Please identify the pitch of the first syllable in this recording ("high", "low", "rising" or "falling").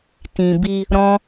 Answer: low